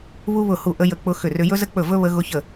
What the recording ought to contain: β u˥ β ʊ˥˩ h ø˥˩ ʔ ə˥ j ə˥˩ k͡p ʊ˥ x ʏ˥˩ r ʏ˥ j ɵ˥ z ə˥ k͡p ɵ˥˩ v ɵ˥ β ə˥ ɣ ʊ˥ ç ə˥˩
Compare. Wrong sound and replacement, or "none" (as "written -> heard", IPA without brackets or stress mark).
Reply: ø˥˩ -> u˥˩